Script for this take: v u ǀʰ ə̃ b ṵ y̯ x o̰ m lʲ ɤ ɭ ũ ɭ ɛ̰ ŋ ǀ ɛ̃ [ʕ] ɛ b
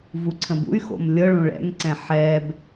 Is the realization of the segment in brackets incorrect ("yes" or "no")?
yes